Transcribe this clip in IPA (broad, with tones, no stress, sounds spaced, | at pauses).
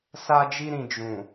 s a˧ d͡ʒ i˧ ɾ ĩ˨ d͡ʒ ũ˨